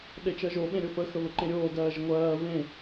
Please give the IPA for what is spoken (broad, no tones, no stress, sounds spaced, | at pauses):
ɗ e t͡ʃ ɜ ʒ o ɓ ẽ ɾʲ o f ə x ə β ə ǃ ẽ ɾʲ oː d ɜː ʒ ə ŋʷ ɜː β ẽ